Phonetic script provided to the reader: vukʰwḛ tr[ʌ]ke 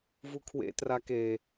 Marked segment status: incorrect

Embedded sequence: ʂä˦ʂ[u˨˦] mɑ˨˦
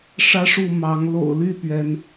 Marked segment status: incorrect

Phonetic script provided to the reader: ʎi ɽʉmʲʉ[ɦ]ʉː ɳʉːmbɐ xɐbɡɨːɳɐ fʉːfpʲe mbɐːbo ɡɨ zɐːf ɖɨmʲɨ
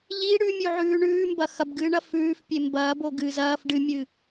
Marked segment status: incorrect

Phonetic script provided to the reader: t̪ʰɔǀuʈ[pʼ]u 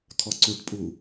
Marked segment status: correct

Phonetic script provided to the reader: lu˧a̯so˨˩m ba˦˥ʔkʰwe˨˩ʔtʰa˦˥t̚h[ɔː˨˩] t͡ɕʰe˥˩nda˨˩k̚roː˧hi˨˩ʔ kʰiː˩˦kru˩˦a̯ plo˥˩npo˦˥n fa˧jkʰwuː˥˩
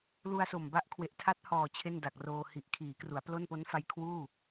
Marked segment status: correct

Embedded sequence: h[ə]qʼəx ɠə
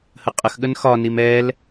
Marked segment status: correct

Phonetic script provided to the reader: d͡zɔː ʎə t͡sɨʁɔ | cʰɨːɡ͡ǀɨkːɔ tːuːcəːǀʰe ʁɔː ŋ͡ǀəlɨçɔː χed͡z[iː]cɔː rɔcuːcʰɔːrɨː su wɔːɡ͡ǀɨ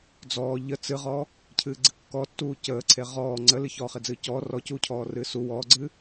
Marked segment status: incorrect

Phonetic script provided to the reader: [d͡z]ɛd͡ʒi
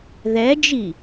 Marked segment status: incorrect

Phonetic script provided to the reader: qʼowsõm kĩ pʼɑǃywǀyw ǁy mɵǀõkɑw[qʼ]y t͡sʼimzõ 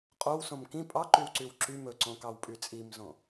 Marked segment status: incorrect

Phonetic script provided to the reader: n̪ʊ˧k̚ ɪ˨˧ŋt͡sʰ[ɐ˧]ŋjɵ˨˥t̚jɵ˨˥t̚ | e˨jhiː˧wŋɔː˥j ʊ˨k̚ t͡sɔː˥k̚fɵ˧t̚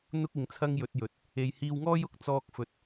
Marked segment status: incorrect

